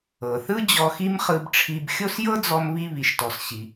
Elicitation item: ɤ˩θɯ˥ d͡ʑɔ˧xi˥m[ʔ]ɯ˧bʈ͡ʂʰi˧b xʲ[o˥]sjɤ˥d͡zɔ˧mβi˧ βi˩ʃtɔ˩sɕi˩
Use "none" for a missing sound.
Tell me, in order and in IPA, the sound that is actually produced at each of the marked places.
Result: χ, o˥

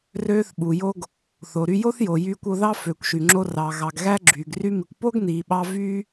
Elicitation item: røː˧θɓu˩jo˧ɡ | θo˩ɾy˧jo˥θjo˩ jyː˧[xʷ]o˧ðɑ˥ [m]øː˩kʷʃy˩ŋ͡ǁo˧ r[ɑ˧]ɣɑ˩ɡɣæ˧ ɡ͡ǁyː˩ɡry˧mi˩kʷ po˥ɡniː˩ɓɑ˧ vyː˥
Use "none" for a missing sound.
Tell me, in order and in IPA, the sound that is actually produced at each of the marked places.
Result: kʷ, f, ɑ˩

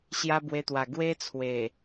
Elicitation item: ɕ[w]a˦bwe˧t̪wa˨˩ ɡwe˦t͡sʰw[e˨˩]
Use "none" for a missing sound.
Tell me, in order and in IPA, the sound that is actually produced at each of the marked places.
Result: j, e˨˩

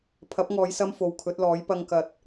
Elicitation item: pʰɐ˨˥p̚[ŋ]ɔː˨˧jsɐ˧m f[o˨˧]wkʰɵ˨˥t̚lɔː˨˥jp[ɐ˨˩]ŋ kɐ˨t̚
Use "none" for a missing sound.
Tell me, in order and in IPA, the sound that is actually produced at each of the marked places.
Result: ŋ, o˨˧, ɐ˧

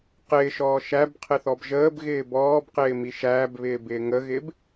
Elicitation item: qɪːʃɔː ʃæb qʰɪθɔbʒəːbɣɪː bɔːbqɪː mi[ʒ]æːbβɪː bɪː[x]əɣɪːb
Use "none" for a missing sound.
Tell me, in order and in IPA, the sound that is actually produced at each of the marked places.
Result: ʃ, ŋ

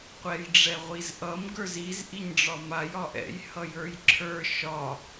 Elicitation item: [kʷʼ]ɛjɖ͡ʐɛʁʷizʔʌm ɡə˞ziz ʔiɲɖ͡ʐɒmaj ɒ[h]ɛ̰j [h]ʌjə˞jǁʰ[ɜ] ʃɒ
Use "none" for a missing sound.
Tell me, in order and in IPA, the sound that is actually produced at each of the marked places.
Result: qʷ, ʔ, h, ə˞

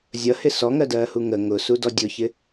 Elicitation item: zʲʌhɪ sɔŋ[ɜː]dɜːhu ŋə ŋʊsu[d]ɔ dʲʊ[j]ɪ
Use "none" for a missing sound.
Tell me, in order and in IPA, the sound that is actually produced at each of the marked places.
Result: ɜ, d, ç

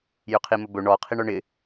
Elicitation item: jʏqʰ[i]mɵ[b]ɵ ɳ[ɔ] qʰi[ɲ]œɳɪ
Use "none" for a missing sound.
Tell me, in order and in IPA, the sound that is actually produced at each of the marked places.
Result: i, b, ɔ, ɳ

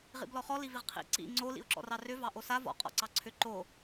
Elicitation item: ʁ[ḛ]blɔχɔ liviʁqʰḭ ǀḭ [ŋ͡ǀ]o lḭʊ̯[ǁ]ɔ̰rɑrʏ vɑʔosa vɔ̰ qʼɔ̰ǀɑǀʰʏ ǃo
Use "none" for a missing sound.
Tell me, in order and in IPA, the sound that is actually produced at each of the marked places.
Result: ḭ, ŋ͡ǀ, ǁ

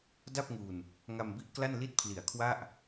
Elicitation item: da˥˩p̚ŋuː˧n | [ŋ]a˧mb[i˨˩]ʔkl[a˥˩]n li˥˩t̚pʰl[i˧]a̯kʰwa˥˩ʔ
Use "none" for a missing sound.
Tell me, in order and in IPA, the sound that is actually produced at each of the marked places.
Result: ŋ, i˦˥, a˥˩, i˨˩

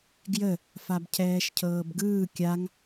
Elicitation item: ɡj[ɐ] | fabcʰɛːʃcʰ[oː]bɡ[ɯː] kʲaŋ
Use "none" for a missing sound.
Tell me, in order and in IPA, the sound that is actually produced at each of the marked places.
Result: ə, ɤː, ɯː

